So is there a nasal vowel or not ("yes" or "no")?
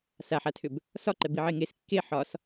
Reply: no